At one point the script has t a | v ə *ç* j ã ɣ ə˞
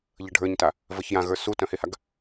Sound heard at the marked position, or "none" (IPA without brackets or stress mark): ç